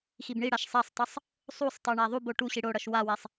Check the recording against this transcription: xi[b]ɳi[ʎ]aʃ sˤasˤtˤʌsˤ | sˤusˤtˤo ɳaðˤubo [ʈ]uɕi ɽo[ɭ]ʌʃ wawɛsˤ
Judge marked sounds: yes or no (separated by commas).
yes, no, yes, no